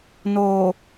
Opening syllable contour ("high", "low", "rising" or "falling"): low